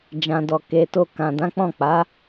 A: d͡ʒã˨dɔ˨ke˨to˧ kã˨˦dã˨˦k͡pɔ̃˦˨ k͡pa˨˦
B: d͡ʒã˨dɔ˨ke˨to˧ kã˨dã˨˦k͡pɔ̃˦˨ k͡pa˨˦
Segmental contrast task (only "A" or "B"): B